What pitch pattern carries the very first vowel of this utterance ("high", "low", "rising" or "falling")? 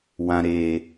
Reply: low